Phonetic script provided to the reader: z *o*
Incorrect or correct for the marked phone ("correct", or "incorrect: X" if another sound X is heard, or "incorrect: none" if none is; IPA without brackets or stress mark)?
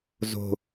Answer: incorrect: o̤